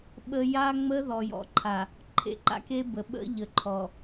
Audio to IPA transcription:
ɓ ə˦ j a˦ ŋ͡m ə˦ ð ɔ˨ j ɔ̰˨ ǃʰ a˨ | ǃʰ ḛ˨ ǃ a̰˦ k e˦ b ə˨ ɓ ə̰˦ ʎ ə˨ ǃʰ ɔ˨

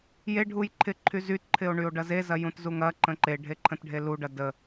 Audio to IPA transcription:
j e ɖʱ u j ǃʰ ɪ ǃʰ y z y t ǃʰ ɪ o̯ ɳ y o̯ ɖ ɐ z e z ɐ j ũ t z u ŋ ɐ ǃ ə̃ ǃ e ɖʱ e ǃʰ ə̃ t ɖʱ e l u ɖ ɐ d ə

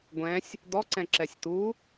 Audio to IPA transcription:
ɡʷ ɛ̃ sʲ | d̪ ɔ ǀ ɛ̃ ǁ ɛ sʲ t̪ u

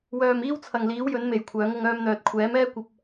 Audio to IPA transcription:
w œː˨ m iː˥ w t͡sʰ ɐ˨ ŋ l iː˨˥ w j ɵ˨˥ n m e˨ j kʷʰ œː˨˥ ŋ ʊ˨˧ ŋ œː˧ m n̪ œː˨ t̚ kʷʰ ɛː˨˥ m ɛː˥ kʷ ɐ˧ p̚

